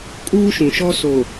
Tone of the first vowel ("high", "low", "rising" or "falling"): high